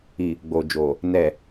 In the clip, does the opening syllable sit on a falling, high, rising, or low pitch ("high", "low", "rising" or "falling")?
low